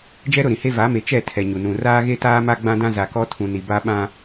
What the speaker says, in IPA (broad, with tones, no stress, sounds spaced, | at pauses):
d͡ʒ ɛ˦ ɾ ʊ˦˨ ɾ ĩ˨ h e˦ v a˨˦ m e˨ t͡ʃ ɛ˦˨ tʰ ɛ˨ ɲ u˨ n ũ˨ r aː˦ ɣ e˦ t aː˦ m a˦ ɡ͡b ã˦ d ã˦ z a˨ k ɔ˦ tʰ ũ˨ n i˨ b a˦ ɓ ã˦